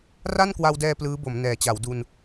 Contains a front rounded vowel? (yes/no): no